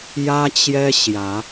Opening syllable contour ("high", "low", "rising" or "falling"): high